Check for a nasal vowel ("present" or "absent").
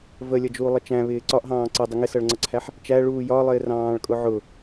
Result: present